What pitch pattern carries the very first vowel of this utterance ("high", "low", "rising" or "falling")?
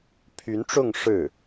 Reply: rising